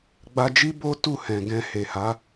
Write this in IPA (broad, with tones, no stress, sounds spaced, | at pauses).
ɡ͡b a˧ d͡ʒ i˦ b o˦ t u˦˨ h ɛ̃˨ ɡ ɛ̃˨ h e˨ h a˨˦